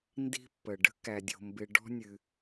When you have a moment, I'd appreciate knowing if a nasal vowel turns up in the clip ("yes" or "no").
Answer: no